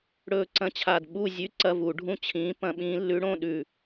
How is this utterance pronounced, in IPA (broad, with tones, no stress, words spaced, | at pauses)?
ɽɵː˦˨ǀɐ̃˦˨t͡ɕʰa˦˨d ɓu˦˨zʲʉ˧˥ ǀɐ˧˥˧vu˧˩˧ɖʱũ˦˨ t͡ɕʰĩː˧˥pɐ̃˧˥ɓĩː˧˥ lːʉ˧˥ɽõ˧˥˧ ɗʉ˦˨